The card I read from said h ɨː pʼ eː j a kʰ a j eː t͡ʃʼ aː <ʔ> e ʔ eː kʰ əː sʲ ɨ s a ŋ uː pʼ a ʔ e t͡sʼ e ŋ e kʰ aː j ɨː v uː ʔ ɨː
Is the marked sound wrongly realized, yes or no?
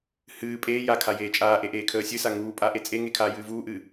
no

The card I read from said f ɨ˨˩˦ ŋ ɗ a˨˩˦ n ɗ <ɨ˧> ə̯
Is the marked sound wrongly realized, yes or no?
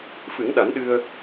no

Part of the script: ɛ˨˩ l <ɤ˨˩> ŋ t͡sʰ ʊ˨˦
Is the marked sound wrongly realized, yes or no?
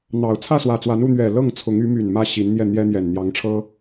yes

